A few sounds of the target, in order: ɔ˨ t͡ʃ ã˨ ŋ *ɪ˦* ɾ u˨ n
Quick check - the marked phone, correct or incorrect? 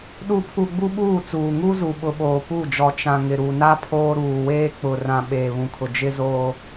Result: incorrect